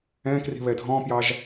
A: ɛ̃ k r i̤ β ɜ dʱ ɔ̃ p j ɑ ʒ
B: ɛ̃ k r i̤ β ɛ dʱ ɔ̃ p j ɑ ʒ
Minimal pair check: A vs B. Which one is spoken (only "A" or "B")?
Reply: B